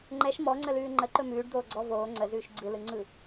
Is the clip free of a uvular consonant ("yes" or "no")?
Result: yes